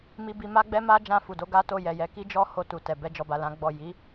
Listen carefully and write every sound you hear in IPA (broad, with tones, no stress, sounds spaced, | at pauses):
m i˧ b i˧ m a˦ ɡ͡b ɛ˦ m a˦ d͡ʒ ã˧ f u˨ d o˧ ɡ a˦ t o˦˨ j ɛ˨ j ɛ˨˦ k i˦ d͡ʒ ɔ˦ h o˧ t u˨ t ɛ˨ b ɛ˧ d͡ʒ ɔ˨ b a˨ l ã˨˦ ɡ͡b ɔ˦˨ j i˨˦